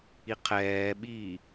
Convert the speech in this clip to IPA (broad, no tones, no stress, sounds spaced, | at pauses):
i qʰ ɛː ɓ iː